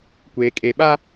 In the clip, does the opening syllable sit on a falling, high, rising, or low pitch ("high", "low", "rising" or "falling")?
low